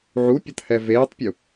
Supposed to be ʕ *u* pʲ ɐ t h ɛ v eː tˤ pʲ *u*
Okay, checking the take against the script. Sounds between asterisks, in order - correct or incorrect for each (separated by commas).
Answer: correct, correct